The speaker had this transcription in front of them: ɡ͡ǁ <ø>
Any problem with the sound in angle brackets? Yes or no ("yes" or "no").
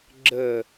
yes